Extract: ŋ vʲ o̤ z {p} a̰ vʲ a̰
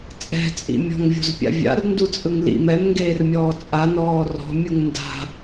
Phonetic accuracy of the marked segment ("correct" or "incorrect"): incorrect